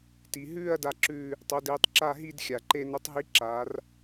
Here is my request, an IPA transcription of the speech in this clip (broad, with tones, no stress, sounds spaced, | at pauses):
t i˧ ɦ ʉː˥˧ ɐ̯ d a˥˧ ǁ ʉː˥˧ | tˤ o˧˥ d eː˧˥ tˤ ǁ a˥˧ ɦ i˥˧ d xʲ a˨˩ ǃ e˥˧ n o˧˥ tˤ ɦ i˧˥ ǁ aː˩˧ r